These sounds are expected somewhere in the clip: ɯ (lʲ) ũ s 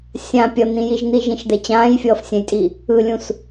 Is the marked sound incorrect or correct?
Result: correct